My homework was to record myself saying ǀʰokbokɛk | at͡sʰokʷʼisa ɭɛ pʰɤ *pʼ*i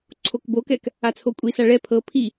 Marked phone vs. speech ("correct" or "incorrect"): incorrect